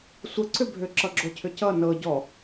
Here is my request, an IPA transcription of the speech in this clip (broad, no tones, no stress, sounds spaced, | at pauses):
sʷ ə ǀ ʏ bʱ ʏ ǁ ʌ ɡ͡ǁ o cʰ ʏ c ʌ n ɤ ɟ ɔ